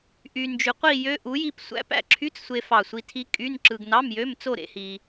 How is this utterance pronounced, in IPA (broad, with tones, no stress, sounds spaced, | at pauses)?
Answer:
ʔ y˧ n d͡ʒ y˧ qʷ i˥˧ j ø˦˥ ʔ u˨˥ j i˥˧ p sʷ æ̰˦˥ p æ̰˦˥ ǁʰ y˧˥˧ t͡s sʷ e˧ f ɑ˧˩ sʷ i˧ tʰ i˦˥ kʼ y˧˥˧ n ǁ ɯ˧ ɡ n ɑ˧˥˧ m j ø˧˥˧ m t͡s o˥˧ ɾ ḛ˦˥ h i˧